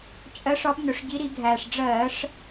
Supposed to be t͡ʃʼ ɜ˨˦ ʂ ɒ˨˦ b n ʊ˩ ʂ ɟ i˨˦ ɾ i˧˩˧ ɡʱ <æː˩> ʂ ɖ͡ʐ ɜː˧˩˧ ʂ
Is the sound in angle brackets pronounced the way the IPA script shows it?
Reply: yes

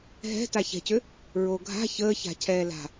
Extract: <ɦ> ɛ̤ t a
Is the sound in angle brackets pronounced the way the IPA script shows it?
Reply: yes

